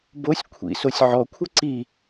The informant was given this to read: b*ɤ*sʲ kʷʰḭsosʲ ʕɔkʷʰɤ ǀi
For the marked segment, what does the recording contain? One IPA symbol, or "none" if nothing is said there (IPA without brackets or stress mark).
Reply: o